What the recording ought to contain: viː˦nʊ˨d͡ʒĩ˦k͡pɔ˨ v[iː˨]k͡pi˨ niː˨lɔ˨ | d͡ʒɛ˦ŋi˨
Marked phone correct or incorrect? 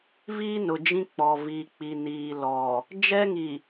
correct